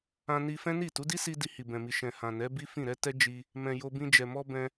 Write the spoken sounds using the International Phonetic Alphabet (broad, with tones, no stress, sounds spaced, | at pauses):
ã˧ n i˧ f ɛ̃˦ n i˦˨ t u˨˦ d i˦ s i˧ d i˧ h i˨ b ɛ̃˨ m i˨ ʃ ɛ̃˨ h ã˨ n ɛ˨˦ b i˦ f ĩ˦˨ ɾ ɛ˨˦ t ɛ˦ d͡ʒ i˧ | m ɛ̃˨ j o˧ b ĩ˧ d͡ʒ ɛ˨ m ɔ˧ b ɛ̃˧